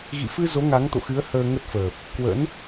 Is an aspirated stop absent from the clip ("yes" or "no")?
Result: yes